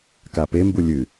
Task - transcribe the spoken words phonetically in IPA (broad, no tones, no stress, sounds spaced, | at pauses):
k a p e m b u lʲ ɨ